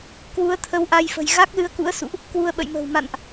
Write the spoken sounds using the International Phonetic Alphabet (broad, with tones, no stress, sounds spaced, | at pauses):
k w u˨˦ ə̯ t̪ʰ ə˨˦ w ʔ a˧ j f ə̤˨˩ j ɣ a˦˥ k̚ l ɨ˧ ə̯ k ṵ˧˥ ə̯ s ṵ˧˨ ʔ | k w u˧ ə̯ ɓ ə̰˧˨ j m ə̤ː˨˩ w m a̰˧˨ n ʔ